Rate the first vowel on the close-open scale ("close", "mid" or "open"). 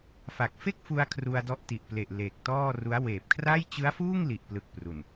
open